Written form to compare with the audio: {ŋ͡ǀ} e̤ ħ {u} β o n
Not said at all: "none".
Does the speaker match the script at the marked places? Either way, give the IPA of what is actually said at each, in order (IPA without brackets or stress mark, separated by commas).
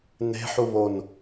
n, u